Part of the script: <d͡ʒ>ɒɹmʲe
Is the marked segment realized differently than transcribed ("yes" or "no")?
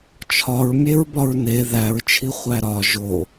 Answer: yes